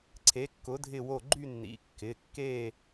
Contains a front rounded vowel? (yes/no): yes